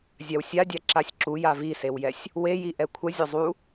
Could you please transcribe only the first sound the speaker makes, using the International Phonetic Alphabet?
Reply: zʲ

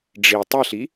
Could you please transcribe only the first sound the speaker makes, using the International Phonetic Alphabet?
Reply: ɖ͡ʐ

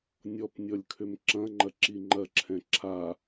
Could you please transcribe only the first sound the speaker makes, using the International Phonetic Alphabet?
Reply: nʲ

